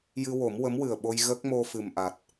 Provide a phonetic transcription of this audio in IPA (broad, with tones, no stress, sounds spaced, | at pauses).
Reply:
j ɨ˧ w o˨˩˦ m w ə˧˥ m w ɨ˨˩ ə̯ ɓ o˧ j ɣ ə˦˥ k̚ m o˧ f ɨ˨˩ m ʔ a˨˩ t̚